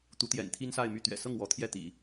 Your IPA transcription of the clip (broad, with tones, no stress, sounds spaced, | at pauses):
t̪ u˧˥ t̪ j ɛ̰˨˩ n t̪ʰ i˥ n s a˥˧ ɪ̯ m y˥˩ t̪ ɥ ɛ̰˨˩ s ɤ˥˩ ŋ w ɔ˧˥ t̪ʰ j ɛ˥˩ t̪ ḭ˨˩˦